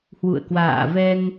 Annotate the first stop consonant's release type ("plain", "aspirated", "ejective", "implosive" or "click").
plain